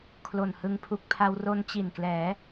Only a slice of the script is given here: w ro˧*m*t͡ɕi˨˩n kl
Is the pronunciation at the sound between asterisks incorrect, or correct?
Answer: incorrect